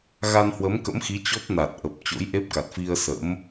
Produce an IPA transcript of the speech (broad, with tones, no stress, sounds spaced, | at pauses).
ɣ a˧ n h w ə˨˦ m k ə̰˧˥ m x i˨˦ t͡ɕ ɔ˦˥ p̚ n a˨˩ t̚ ʔ ə˨˩ p̚ t͡ɕ o̰˧˥ j ʔ e˦˥ p̚ k a˨˩ t̚ f i˧ ə̯ s ə̰˧˥ m